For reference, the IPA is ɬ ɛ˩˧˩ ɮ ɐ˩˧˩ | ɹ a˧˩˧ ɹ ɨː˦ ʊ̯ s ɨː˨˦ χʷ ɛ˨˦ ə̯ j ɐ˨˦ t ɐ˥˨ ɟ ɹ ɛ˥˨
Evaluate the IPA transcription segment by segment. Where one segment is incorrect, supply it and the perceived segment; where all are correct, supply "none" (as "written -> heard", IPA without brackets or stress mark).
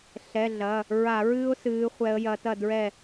ɟ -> d